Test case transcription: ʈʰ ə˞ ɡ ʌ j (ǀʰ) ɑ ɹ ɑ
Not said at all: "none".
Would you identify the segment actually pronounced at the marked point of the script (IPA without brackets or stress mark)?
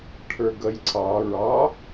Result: ǀʰ